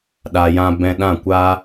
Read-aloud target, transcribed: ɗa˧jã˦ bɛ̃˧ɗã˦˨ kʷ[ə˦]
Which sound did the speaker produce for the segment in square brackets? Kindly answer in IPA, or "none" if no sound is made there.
a˦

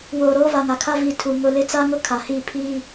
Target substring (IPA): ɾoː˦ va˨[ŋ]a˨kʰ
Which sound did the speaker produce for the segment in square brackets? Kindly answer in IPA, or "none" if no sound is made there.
ŋ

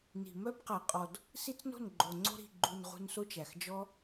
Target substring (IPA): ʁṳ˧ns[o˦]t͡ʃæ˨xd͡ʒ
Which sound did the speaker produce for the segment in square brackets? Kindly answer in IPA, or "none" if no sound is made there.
o˦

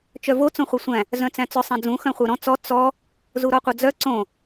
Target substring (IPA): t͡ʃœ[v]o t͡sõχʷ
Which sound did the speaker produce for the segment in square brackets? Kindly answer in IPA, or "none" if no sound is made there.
v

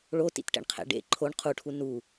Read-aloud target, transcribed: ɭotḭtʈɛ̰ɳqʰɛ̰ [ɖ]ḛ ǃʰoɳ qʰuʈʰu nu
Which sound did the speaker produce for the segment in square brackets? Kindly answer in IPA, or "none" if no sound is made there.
ɖ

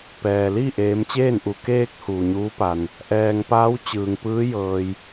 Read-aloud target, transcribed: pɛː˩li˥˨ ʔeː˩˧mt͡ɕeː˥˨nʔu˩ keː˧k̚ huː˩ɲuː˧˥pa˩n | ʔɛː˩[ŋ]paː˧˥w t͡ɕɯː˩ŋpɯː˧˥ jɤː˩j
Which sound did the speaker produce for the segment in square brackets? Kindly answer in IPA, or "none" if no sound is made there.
ŋ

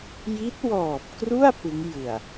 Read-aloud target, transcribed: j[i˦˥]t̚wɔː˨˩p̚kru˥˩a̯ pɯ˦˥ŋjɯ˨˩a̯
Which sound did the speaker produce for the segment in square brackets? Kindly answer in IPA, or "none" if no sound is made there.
i˦˥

